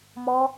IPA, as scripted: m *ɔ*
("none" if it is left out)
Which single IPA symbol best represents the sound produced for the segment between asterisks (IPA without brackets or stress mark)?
ɔ